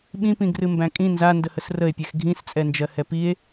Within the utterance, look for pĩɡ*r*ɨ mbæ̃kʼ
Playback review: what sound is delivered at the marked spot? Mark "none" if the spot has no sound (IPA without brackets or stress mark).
r